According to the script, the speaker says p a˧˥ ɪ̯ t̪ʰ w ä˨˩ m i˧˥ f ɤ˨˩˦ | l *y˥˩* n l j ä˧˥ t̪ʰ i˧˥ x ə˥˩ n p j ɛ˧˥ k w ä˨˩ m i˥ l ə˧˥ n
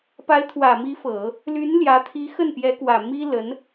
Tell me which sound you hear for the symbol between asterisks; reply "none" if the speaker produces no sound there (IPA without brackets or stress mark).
y˧˥